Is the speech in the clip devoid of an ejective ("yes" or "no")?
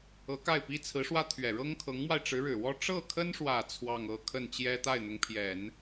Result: yes